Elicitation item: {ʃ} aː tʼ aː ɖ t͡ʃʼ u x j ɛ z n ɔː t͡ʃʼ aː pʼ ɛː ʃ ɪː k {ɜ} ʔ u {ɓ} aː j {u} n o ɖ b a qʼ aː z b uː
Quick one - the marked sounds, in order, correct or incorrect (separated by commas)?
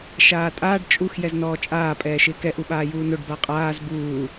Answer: correct, incorrect, correct, incorrect